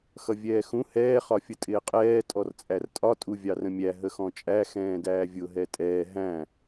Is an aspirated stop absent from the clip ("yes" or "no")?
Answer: yes